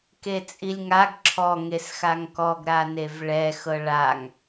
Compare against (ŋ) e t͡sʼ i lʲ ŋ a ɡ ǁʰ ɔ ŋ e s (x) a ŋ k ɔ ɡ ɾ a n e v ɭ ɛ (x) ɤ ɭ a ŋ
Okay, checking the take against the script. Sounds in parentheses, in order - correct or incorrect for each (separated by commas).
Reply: incorrect, correct, correct